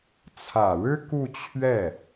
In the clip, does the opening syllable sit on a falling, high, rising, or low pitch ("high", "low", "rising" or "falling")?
low